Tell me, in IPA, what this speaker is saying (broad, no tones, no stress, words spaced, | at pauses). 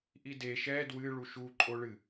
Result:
ʔide ʃɛ dwɨ ɭuʃu ǃʼoɭɨ